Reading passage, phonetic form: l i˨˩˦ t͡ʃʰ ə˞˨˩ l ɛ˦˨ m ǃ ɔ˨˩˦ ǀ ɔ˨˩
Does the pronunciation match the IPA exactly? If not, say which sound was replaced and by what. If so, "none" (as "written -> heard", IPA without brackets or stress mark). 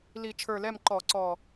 none